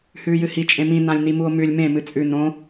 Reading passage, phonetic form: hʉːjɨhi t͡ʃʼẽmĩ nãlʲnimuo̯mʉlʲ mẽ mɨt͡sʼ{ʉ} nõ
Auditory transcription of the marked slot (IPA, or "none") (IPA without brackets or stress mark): ʉ